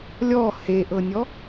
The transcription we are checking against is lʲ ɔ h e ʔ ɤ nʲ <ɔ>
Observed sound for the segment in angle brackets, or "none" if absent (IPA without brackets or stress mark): ɔ